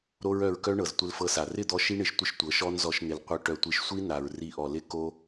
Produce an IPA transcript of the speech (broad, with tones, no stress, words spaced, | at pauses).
ɾo˦ɹœ˧ɹkœ˦ ɳɤ˨ztʷɪ˧lfɤ˧sa˨ rɪ˦˨d̪ɔ˧ ʃi˦ ɳɪ˧ʃ tʷɪ˦ʃtʷɤ˨˦ ʃɔ˦nzɔ˧ʃ n̪ɪ˨l qʷœ˧ ʈœ˨tʷi˨ʃ sʷi˦na˨ɹ ri˧ʔɔ˨lɪ˦ ko˧